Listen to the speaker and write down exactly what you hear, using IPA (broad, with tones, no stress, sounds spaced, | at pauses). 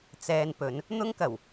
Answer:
t͡s ɛː˧ n p ɵ˨˧ n | n̪ ʊ˥ ŋ k ɐ˨˩ w